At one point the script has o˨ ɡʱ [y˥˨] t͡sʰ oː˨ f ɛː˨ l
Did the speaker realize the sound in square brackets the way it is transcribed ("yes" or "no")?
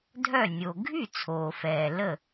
yes